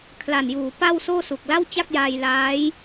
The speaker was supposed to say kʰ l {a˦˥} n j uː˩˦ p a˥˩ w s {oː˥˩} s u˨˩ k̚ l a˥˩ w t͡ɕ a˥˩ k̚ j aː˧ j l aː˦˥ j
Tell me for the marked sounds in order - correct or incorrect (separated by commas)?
incorrect, correct